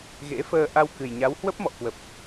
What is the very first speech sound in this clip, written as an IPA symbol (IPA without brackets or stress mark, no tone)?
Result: ɣ